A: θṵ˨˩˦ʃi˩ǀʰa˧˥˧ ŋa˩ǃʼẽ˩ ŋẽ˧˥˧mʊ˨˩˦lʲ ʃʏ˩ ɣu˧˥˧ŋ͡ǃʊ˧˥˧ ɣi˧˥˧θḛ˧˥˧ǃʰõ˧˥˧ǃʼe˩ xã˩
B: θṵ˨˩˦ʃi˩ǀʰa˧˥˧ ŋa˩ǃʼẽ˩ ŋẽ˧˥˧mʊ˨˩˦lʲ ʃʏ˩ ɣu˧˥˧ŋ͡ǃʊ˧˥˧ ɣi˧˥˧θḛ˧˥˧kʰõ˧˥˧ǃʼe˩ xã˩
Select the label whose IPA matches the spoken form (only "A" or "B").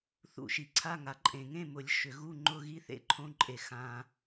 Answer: A